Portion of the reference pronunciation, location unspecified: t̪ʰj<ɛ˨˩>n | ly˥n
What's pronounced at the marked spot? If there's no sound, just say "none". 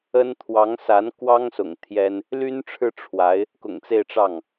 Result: ɛ˥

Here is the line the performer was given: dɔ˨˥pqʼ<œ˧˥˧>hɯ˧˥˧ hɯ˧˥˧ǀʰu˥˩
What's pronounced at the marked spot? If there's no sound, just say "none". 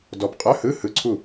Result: œ˧˥˧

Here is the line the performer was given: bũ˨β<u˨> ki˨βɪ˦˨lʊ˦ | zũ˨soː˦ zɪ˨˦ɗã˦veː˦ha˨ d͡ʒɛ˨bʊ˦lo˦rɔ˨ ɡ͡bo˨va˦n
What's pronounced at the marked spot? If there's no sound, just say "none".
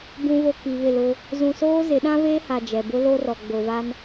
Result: o˨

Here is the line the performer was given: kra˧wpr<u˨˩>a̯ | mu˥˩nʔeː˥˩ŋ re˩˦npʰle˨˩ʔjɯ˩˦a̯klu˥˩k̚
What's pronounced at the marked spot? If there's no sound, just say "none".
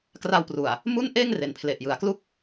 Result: u˨˩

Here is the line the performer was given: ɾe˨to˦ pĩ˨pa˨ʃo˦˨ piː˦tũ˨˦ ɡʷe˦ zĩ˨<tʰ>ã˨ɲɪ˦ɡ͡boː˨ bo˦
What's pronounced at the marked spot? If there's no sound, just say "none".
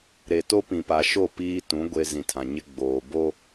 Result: tʰ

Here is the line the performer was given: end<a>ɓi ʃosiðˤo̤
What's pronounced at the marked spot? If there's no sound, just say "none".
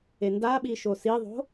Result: a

